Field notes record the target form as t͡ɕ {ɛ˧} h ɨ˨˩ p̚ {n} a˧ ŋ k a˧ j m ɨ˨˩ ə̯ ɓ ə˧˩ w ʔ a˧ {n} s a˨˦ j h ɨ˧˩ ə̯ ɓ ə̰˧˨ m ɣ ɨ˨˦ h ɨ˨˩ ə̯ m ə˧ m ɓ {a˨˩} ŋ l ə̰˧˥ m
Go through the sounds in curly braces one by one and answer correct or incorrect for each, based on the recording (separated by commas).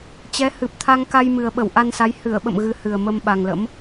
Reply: incorrect, incorrect, correct, correct